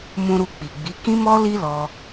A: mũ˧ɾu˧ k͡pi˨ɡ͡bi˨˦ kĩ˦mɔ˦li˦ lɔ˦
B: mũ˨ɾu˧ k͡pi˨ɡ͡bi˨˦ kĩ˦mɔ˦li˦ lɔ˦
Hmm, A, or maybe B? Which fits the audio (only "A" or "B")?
A